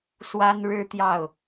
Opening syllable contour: high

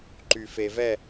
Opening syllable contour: low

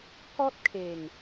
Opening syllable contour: high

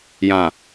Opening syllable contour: low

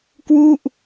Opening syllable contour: falling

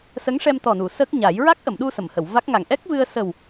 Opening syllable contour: rising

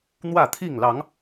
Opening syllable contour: falling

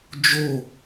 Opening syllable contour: falling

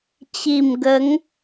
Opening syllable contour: low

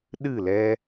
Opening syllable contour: falling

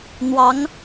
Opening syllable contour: rising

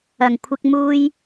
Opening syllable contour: low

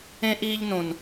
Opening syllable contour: high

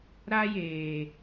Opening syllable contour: high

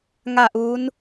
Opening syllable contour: falling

